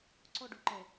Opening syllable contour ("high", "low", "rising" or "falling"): high